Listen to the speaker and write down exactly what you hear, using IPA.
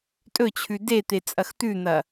tʼ ɵ t͡ɕʰ ʉ d e t̪ e t͡sʼ ɐ x t̪ ʉ n̪ ɐ

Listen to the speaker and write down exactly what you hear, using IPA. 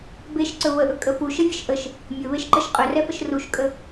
b e ʃ ǀ ɵ β ə ʔ ɵ kʼ ə f u ʃ ə vʲ ə ʃ ʔ ə ʃ | mʲ ɵ β e ʃ ǃ ə ʃ qʼ ɵ r ɛ f ə ʃ r u ʃ kʼ ə

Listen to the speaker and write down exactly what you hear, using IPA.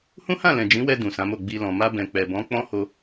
h ũ˦ h ã˦˨ l ɛ̃˨ d͡ʒ ĩ˨˦ w ɛ˧ d ũ˨ s ã˨˦ m o˦˨ ɡ͡b i˧ l ɔ̃˨ m a˧ b ɛ̃˨ k͡p ɛ˨ b ɔ̃˨˦ k͡p ɔ̃˦ h o˧

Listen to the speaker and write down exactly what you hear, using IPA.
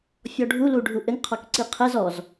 fʲ ɔ ɖʱ u l u ɖʱ u ʔ ɘ ŋ qʰ ɔ k ǀ i qʰ ɘ z ɔ z

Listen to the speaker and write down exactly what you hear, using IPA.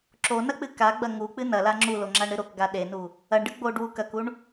ǁ o n ɐ k͡p ɨ k a ɡ͡b ɐ ŋ u k͡p ɨ n ɐ l a ŋ͡ǁ u l o ŋ͡ǁ a ɳ ɾ ɨ ɾ o k ɡ a ɗ e n u | ɐ ɳ ɖ ɨ ɡ͡b o ɖ w u k ɐ k u ɳ

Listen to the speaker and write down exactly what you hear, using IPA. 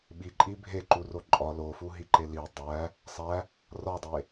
ɓ i ǃʼ i bʱ e ǃ u r o ǃʼ ɒ l o f u ɦ i ǃ e l i dˤ æ | sˤ æ | r ɒ dˤ e

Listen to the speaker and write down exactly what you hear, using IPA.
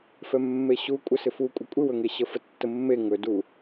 f ɛ mː e ɕ u kʷʼ ə s ɪ f u kʷʼ ɪ kʷʼ ɪ w ɵ ŋ e ɕ ə f ə tː ə mː e ŋ ɵ d u

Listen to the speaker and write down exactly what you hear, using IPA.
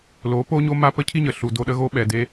l o˨˦ p o˦ ɲ o˧ m a˧ p ə˦ cʰ i˦ ɲ ə˨ ɬ u˨ d o˧ ɗ ə˦ ɣ o˦ ɓ ɛ˨ d e˧

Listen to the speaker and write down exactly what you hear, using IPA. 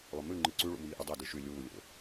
lˠ ɵ m ʉ ŋ͡ǃ ɨ ǀ ʉ ɭ ṵ m iː ʔ ɵ dˤ e d ɨ ʃ ʉ lʲ uː lʲ o̰

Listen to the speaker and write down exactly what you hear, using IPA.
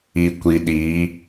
i˨ kʷ i˨ ɗ i˨˦

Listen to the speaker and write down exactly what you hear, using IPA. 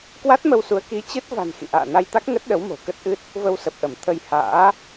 k w a˦˥ t̚ m ə˧ w s u˨˦ ə̯ k i˨˦ t͡ɕ ɨ˦˥ t̚ v a̤˨˩ n x ḭ˧˨ ʔ a̰ː˧˨ n a˧ j t̪ a˦˥ k̚ ŋ ə˦˥ t̚ ɗ ə˨˦ w m o̤˨˩ k ə˦˥ t̚ ʔ ɨ˦˥ t̚ | v ə˧ w s ə˨˩ p̚ ʔ ə˧˩ m t̪ʰ ə˧ j h a̰ː˧˥

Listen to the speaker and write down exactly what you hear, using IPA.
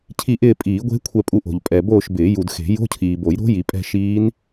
cʰ i˦˨ ʔ ɪː˦˨ pʼ iː˨˩˦ ɡʷ e̤˦˥ kʷʰ ɛ˦˨ pʼ u˦˨ ʔ o̤˨ ʎ pʼ ɛ˨ b oː˦˨ ʃ b ɪː˨˩˦ j u˨ d x e̤˨˩˦ j o̤˧˥˧ cʰ iː˨ b o˨˩˦ j ɾ o̤˦˥ j i˨ pʼ ɛ̤˦˨ ʃ iː˦˥ n

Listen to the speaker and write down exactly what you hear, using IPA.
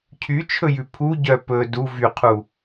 cʰ y t͡ʃʰ ɵ j ʉ pʰ u ɟ œ p ɵ d u v y qʰ u

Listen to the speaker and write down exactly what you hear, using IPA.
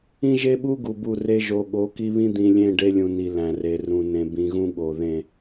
ĩ˦ ʒ e˦ ɓ u˦ ɡ u˨ b u˦˨ r e˦ ʒ o˨ ɠ o˨˦ k i˦ β ĩ˦ d̪ ĩ˨ lʲ ẽ˦˨ ɖ e˦ lʲ ũ˨ n i˨ l æ̃˨ r e˨ r ũ˨ n ẽ˨ b ĩ˨ ɣ ũ˦ ɠ o˨ ð ẽ˦˨

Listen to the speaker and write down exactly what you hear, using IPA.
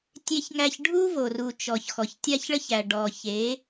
tʲ e˦ ç ŋ æ˦ ç ɖʱ u˦ v o˨ r u˨ t͡ʃ ɔ˨ ç x ɔ˨ ç tʲ a˦ ç ɭ ə˦ ç æ˨ ɖ ɔ˨ ç e˨˦

